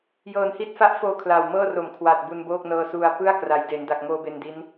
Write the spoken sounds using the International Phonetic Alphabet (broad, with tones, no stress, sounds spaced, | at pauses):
j ɤː˧ n h i˥˩ t̚ f a˦˥ ʔ f oː˧ kʰ l a˨˩ w m ɤː˥˩ r o˩˦ m kʰ w a˨˩ t̚ b u˧ n b oː˥˩ k̚ n ɤː˧ s u˧ a̯ p ɯ˥˩ a̯ k r a˩˦ j d e˩˦ n d a˨˩ k̚ ŋ oː˧ b e˧ n d i˦˥ n